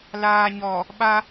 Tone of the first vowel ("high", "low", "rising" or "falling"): low